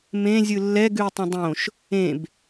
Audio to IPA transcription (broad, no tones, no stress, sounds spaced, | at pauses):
m ẽ zʲ ɯ lː ɛ ɡ ʉ e̯ tˤ ẽ dˤ õ ʃ | ẽ b